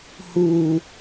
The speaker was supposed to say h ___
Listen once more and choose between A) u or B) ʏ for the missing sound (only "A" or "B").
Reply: A